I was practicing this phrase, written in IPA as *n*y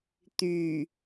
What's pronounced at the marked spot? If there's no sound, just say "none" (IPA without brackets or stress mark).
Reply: t̪